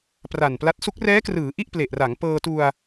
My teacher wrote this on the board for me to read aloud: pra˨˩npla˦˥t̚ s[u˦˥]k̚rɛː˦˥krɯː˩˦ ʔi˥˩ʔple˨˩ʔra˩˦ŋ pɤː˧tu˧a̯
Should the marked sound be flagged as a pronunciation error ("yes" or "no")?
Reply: no